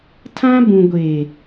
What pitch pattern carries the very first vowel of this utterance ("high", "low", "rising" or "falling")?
high